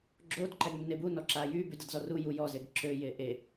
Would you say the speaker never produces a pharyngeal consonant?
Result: yes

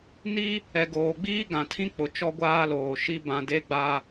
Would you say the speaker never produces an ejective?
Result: yes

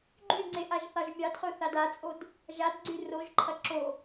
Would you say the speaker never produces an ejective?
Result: no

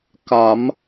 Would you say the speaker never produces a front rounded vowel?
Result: yes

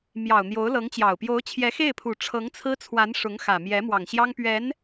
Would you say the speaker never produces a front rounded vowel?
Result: yes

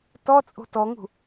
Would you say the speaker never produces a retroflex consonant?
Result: yes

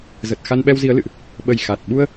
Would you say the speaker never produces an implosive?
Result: no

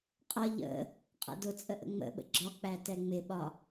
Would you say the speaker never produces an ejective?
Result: no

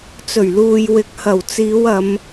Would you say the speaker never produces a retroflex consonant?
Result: yes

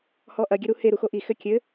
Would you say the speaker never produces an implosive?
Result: yes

